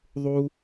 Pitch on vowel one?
high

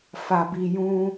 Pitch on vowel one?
low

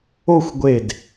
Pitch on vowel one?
falling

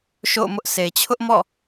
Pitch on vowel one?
falling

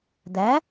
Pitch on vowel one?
rising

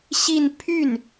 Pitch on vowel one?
falling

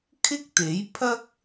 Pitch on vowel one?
high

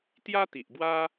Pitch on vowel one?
high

